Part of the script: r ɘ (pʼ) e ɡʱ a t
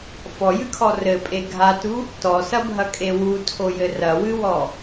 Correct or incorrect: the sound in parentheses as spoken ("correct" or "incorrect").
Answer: correct